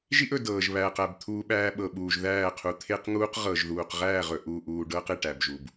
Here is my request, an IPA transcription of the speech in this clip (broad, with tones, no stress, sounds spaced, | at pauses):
ʒ i˦ ʔ ɵ˨ d ɤː˨ ʒ β æː˨ q æ˨ b t̪ʰ uː˦ ɓ æː˦ ɓ ɤ˨ ɓ uː˨ ʒ ð æː˦˨ qʰ u˨ t̪ʰ e˦ q ŋ uː˦ q ʁ ɤ˨ ʒ ð uː˨ q ʁ æː˦˨ ʁ ɵ˨ ʔ uː˨ ʔ uː˨ ɖ ɤː˦ q e˨ ʈ æ˨ b ʒ u˨ b